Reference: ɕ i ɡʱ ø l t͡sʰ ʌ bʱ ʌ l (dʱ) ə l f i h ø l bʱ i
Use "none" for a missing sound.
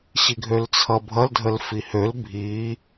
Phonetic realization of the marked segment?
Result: dʱ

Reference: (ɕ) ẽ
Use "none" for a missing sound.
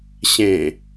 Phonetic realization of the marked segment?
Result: ɕ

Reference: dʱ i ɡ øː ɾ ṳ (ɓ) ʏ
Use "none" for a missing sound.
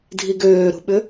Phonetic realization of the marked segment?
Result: ɓ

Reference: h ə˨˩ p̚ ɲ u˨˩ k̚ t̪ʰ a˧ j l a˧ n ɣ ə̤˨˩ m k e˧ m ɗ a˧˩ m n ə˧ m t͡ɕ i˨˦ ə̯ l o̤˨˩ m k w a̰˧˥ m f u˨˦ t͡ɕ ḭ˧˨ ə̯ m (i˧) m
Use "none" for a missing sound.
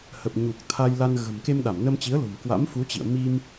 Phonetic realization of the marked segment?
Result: i˧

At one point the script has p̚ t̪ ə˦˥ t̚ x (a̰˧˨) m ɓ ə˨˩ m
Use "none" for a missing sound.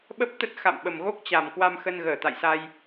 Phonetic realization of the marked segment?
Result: a̰˧˨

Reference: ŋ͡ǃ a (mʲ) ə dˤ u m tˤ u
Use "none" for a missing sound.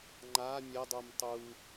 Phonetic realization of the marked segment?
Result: mʲ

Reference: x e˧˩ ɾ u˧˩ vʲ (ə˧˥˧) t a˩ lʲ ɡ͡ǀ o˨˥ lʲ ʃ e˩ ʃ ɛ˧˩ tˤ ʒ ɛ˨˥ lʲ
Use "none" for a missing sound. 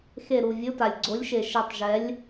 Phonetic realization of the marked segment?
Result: ʊ˧˥˧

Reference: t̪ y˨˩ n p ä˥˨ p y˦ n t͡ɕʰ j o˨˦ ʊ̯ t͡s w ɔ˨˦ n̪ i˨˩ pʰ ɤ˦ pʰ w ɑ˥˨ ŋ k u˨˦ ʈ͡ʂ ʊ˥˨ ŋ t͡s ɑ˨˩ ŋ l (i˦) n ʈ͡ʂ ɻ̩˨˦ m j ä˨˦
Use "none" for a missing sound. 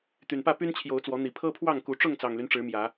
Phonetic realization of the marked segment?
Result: y˦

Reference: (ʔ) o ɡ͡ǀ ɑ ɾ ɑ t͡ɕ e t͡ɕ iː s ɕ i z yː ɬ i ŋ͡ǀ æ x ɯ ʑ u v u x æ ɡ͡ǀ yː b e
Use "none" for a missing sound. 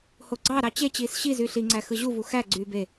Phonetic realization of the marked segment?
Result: h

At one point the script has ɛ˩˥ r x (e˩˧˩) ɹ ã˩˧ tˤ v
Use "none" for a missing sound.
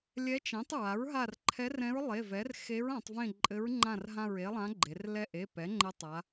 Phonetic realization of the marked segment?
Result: e˧˥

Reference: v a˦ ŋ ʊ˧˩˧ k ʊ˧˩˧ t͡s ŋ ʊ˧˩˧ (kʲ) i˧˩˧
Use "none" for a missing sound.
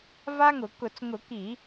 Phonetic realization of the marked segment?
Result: k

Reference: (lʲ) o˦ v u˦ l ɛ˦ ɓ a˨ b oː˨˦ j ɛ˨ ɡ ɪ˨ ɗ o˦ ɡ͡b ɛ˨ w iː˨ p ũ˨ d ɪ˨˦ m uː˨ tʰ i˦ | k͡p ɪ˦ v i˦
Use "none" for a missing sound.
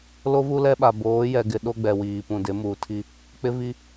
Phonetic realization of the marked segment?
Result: l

